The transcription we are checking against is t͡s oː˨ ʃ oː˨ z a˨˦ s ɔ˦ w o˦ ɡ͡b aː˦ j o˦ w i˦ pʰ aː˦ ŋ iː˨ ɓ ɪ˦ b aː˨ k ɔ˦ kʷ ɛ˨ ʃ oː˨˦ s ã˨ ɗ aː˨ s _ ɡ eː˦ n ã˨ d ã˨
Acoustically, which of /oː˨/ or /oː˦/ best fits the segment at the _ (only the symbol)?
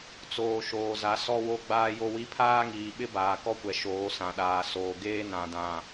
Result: oː˨